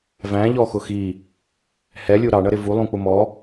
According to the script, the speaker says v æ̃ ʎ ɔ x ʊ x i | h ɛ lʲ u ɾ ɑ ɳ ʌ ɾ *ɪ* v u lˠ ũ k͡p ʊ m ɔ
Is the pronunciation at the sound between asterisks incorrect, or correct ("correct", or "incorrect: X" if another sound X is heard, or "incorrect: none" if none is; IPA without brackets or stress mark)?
correct